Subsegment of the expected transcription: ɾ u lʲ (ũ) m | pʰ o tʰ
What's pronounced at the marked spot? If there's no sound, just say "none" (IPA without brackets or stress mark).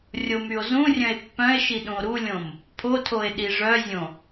õ